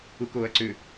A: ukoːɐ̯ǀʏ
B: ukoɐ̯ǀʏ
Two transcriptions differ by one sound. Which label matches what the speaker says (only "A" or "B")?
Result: A